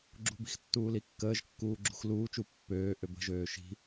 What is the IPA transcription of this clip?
ɡ͡ǁ ṳ b i̤ x tː uː l i kː əː ʒ kː uː ɡ͡ǁ ṳ x l uː t͡ʃ u pː øː ʔ ø b ə̤ ʒ øː ʃ i̤

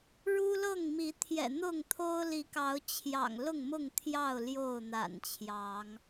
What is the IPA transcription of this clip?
ɻ u˦ l ɤ˥˨ ŋ m i˨˦ t̪ʰ j ɛ̰˨˩ n̪ ʊ˥˨ ŋ t̪ʰ o˦ ʊ̯ l i˨˦ k ɑ˨˦ ʊ̯ t͡ɕʰ j ɑ̰˨˩ ŋ l ʊ˥˨ ŋ m ʊ˥˨ ŋ t̪ʰ j ɑ˥˨ ʊ̯ l j o˥˨ ʊ̯ n̪ a̰˨˩ n t͡ɕʰ j ɑ˨˦ ŋ

